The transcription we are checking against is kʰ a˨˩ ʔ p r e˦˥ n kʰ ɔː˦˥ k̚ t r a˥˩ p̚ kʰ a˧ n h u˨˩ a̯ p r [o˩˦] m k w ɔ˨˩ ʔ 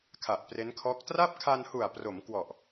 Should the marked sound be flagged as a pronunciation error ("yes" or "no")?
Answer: no